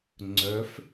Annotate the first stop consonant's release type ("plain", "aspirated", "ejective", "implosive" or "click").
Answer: click